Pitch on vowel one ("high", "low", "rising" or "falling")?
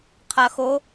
low